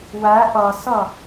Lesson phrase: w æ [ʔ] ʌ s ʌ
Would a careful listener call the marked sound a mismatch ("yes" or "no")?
no